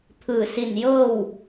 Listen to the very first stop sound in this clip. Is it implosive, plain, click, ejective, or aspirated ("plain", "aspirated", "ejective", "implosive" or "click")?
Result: aspirated